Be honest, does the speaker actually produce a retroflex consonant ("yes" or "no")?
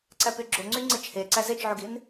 no